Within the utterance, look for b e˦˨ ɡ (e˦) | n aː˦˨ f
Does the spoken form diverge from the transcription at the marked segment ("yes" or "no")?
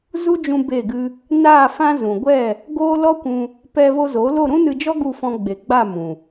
yes